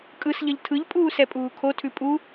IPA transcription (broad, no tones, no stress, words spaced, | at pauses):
kʼɯsʎʌʎ tʰɯʎpʼuːsɛpʼuː kʰotʰʉ pʼu